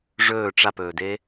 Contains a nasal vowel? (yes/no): no